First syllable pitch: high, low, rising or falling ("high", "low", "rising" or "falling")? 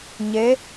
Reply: rising